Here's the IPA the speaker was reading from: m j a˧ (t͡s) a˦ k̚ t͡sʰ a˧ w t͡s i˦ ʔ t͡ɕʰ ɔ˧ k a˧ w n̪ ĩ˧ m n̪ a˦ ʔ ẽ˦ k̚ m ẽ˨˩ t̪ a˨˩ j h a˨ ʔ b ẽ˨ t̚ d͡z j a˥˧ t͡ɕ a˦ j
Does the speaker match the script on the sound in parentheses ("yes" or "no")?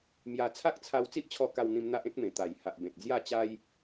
no